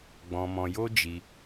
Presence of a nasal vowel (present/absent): present